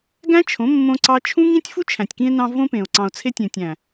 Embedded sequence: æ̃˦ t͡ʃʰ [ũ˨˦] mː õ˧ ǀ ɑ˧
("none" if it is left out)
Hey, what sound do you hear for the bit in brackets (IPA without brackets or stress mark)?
õ˨˦